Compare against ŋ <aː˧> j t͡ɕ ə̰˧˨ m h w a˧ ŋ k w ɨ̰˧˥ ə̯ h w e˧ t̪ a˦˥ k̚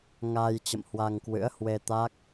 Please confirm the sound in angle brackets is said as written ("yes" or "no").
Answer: yes